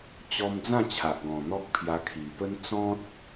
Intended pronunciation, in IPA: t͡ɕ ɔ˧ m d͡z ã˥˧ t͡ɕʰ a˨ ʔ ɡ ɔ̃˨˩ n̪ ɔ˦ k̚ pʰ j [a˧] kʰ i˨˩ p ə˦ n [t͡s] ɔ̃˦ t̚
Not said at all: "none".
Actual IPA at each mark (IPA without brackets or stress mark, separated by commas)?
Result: a˧, t͡s